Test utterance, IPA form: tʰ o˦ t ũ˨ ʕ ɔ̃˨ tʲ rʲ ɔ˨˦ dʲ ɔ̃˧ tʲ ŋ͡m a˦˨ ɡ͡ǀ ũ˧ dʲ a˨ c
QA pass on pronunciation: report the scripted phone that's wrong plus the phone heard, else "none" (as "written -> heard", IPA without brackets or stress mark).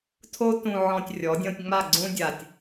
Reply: c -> tʲ